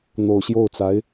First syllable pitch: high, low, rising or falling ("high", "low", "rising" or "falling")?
low